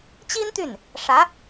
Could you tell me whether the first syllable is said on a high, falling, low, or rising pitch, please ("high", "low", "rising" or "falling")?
high